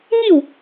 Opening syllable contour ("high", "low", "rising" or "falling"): falling